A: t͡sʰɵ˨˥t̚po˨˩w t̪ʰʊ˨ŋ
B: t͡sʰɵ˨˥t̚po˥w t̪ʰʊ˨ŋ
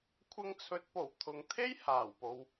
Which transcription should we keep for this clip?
A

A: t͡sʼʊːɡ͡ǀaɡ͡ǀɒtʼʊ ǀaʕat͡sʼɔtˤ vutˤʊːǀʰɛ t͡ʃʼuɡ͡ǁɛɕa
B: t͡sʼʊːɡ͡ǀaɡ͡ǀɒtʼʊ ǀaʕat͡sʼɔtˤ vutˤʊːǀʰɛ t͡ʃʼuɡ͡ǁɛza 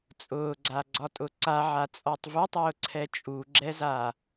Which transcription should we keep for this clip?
B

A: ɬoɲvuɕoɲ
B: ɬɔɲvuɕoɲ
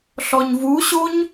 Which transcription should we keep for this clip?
B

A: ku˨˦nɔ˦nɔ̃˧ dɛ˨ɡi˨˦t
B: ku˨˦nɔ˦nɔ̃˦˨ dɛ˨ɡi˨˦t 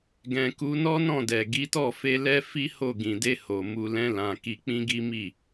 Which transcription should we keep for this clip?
B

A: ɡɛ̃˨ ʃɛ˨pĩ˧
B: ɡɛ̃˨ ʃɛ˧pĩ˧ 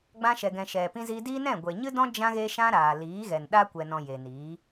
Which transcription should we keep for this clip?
A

